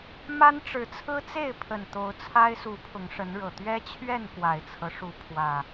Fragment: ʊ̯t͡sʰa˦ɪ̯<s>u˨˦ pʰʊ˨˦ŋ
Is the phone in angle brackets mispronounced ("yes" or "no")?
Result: no